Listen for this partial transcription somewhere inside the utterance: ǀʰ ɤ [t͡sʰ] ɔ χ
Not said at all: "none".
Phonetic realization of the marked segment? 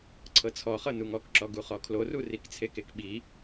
t͡sʰ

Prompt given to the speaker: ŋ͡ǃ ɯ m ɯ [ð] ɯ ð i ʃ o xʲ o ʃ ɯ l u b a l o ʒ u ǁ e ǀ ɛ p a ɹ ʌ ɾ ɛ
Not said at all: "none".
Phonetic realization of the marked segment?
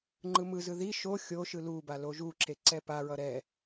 z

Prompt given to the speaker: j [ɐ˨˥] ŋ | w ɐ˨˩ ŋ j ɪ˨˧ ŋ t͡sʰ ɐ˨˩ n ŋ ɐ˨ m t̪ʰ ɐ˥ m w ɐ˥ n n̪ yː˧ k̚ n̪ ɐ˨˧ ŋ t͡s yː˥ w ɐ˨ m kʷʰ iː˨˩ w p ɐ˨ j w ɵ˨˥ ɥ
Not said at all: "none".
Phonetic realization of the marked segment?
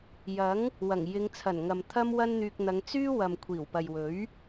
ɐ˨˥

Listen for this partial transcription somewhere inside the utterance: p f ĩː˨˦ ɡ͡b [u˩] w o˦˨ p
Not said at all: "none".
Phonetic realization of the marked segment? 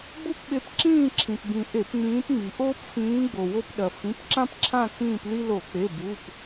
o˩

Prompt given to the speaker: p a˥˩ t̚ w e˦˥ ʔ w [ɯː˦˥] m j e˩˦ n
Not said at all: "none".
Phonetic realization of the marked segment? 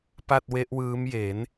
ɯː˦˥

